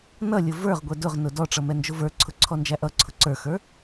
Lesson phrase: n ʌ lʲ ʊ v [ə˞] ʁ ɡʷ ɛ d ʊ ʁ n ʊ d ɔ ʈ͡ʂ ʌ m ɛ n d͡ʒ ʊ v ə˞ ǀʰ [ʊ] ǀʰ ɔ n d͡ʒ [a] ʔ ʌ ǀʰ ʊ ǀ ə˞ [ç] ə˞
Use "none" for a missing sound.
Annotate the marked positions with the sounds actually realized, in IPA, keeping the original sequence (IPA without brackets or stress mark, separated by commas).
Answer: ə˞, ʊ, æ, x